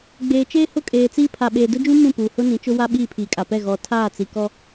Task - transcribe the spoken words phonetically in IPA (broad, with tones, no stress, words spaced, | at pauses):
ɡ͡beː˨t͡ʃeː˦ hʊ˦kʼeː˨t͡siː˦ pʰa˨ɓeː˨dʊ˦d͡ʒũ˦ mũ˦˨puː˨hʊ˦ nĩ˨˦t͡ʃʊ˦ wa˦ ɓiː˦˨pʰiː˨kʼa˨pɛ˦˨ ɣɔ˨ tʰaː˦˨t͡si˨ kɔ˦